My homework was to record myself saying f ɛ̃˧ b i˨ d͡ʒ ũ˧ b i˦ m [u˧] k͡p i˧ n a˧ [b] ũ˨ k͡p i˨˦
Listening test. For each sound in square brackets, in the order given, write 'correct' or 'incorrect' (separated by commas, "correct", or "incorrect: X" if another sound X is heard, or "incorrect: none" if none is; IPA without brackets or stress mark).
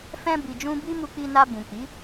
correct, correct